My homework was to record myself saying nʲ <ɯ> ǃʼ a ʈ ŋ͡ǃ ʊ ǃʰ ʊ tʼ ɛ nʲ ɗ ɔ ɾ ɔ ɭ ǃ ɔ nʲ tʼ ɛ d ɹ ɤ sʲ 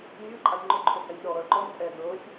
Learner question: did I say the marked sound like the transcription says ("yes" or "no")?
yes